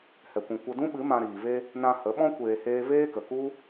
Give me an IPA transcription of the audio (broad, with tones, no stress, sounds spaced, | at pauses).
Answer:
h ɛ˨ kʷ ũ˨ kʷ ə˧ d ũ˦ ɓ ɨ˨˦ m ã˧ ɾ iː˨ v e˧ | n ã˧ h ə˨˦ ɓ ɔ̃˦ kʷ eː˧ h eː˦ v eː˦ k ə˨ k u˦